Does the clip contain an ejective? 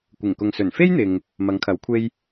no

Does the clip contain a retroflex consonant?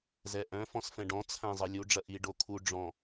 yes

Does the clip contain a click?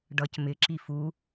yes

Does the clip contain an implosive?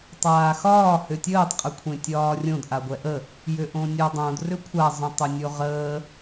no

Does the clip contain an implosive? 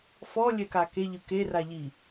no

